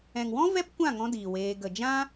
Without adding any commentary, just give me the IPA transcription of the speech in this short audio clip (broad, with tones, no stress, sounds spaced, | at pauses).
ɛ̃˨ ŋ w ɔ̃˦ v ɛ˦ p kʷ ã˦˨ ŋ ɔ̃˧ d iː˨ w eː˧ ɡ ə˨ d͡ʒ ã˦